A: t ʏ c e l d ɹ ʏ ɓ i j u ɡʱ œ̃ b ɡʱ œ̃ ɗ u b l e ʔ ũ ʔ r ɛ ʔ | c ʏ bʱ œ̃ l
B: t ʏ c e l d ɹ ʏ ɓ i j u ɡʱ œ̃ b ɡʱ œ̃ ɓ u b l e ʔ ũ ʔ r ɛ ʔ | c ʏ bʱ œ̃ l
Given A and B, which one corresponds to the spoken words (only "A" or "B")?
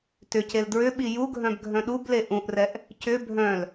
A